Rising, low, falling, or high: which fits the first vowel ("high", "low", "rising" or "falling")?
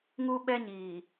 high